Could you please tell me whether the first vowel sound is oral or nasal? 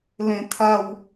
nasal